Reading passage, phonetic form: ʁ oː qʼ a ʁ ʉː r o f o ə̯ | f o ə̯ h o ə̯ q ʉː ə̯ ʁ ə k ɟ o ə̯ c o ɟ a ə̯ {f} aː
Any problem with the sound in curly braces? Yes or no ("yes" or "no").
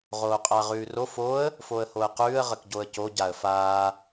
no